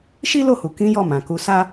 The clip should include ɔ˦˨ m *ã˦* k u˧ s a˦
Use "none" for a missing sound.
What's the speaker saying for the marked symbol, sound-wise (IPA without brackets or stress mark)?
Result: ã˨